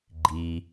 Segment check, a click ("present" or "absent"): present